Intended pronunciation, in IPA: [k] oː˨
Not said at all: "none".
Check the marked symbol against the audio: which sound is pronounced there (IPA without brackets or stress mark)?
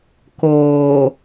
k